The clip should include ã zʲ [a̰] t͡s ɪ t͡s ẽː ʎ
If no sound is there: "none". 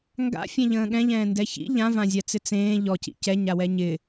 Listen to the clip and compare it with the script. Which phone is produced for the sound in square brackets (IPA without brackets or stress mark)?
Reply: a